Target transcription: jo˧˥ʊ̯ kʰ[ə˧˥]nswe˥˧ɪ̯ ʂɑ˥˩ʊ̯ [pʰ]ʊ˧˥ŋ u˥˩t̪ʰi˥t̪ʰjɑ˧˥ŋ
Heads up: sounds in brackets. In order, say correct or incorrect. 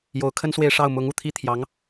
incorrect, incorrect

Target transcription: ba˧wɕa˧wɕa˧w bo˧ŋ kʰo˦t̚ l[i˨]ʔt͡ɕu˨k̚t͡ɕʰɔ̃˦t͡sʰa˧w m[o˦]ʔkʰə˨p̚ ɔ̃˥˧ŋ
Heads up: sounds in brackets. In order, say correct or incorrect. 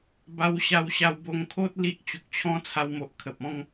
incorrect, incorrect

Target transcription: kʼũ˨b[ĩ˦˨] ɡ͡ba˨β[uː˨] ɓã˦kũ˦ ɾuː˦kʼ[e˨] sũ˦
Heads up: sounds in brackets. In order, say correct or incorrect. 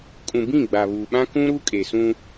correct, correct, correct

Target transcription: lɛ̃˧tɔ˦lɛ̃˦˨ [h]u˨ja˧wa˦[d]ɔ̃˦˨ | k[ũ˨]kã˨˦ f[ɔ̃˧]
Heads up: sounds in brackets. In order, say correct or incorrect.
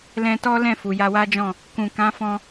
incorrect, incorrect, correct, correct

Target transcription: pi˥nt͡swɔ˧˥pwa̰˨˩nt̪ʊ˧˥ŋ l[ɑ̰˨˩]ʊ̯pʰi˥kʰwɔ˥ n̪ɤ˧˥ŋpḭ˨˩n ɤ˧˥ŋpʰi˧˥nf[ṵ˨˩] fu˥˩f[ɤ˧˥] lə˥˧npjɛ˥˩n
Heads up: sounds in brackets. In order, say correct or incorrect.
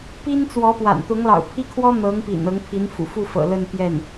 correct, correct, incorrect

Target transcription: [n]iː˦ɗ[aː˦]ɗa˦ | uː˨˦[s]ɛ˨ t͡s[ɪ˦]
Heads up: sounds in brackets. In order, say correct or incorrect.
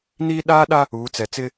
correct, correct, incorrect, correct

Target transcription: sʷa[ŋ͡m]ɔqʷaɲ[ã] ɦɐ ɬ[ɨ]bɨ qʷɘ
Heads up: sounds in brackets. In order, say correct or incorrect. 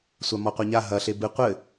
incorrect, incorrect, incorrect

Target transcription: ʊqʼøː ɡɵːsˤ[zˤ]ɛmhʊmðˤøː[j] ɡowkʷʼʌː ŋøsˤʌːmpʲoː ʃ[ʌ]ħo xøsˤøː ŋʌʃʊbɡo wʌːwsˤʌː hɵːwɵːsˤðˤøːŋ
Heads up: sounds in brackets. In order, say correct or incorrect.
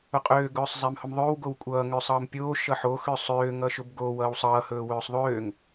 correct, incorrect, correct

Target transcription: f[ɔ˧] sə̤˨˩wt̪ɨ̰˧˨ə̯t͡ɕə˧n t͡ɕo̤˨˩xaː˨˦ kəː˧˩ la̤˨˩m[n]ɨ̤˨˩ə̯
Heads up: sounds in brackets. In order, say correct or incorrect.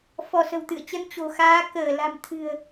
incorrect, incorrect

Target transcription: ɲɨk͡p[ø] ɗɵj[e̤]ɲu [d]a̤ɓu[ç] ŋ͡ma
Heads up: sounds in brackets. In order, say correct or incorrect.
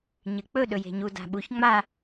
incorrect, correct, correct, correct

